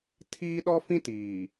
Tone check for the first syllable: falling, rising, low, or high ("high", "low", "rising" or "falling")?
high